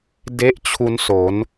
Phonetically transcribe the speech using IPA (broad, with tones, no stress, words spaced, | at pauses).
de˥˩ʔt͡ɕʰu˦˥nso˩˦n